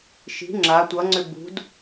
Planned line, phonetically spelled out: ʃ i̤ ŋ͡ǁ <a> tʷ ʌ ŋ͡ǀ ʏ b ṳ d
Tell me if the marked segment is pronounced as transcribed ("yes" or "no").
yes